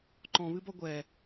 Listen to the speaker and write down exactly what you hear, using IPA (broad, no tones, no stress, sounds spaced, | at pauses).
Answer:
ǃ ɔ̃ β ɨ b ɔ ɡʷ ɛ